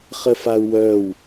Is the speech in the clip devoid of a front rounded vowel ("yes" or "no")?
no